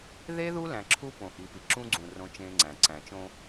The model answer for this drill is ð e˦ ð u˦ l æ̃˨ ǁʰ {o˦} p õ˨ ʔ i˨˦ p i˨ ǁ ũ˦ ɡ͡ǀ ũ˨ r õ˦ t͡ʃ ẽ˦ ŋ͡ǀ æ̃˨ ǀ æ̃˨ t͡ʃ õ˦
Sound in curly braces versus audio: incorrect: u˦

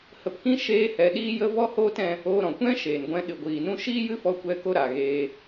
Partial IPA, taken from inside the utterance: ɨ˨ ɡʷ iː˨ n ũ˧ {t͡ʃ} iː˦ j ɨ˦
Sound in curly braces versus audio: incorrect: ʃ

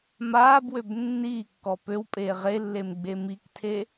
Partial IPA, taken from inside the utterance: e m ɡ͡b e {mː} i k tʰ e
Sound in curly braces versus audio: incorrect: m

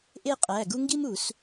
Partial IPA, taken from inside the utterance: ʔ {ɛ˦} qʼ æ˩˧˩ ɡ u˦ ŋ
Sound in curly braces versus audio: incorrect: e˦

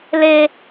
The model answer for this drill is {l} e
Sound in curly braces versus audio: correct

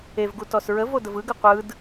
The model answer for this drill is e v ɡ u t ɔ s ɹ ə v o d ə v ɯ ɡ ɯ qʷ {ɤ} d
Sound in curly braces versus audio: incorrect: ɯ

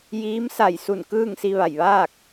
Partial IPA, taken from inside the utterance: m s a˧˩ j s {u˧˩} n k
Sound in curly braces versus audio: correct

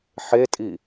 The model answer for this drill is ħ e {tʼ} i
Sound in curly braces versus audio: correct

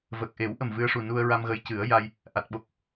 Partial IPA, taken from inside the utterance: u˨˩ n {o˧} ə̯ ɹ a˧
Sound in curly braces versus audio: incorrect: u˧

